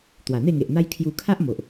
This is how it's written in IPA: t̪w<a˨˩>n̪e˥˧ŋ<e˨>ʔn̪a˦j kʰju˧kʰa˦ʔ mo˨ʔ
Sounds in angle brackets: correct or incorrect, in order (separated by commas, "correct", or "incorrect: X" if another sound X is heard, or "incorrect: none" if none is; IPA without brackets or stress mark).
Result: correct, correct